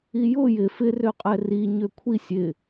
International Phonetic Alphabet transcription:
ijʊ jɪ fɪ røqʼɛri ɲøkʷʰisʲ ɪ

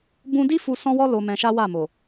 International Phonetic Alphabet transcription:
bũ˧di˦ fu˧ sɔ̃˦wɔ˦ lo˧mɛ̃˧ʃa˦ wa˦˨mo˨

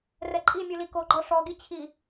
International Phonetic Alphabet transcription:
rɛǃʼimʲu likoɡ͡ǃɔ ʂɔɡi t͡ɕʰi

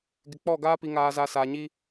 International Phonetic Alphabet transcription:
ɡɪ˨k͡pɔ˦˨ɡaː˦ pi˨ŋaː˨za˨ sa˨ɲi˦

